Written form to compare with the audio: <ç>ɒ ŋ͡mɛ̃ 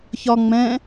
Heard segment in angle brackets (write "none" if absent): ç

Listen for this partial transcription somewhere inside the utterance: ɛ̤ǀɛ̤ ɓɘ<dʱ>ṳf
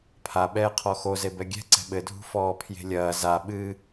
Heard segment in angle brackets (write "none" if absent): dʱ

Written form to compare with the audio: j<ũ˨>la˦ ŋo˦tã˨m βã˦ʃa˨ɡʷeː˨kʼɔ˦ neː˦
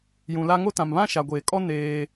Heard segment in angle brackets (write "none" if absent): ũ˨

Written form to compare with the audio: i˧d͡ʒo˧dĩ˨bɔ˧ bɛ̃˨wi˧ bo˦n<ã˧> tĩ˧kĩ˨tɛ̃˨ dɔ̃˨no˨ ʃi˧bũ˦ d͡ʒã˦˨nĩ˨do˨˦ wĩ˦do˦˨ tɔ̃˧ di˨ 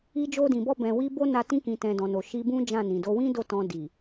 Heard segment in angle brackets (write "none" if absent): a˧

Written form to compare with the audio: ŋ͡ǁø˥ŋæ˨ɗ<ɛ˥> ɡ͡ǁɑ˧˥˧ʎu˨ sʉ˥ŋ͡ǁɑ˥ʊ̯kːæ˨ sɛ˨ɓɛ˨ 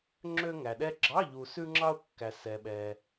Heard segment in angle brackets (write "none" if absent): ɛ˥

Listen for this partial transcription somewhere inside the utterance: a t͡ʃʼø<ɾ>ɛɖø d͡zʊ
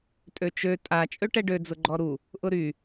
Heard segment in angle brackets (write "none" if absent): ʈ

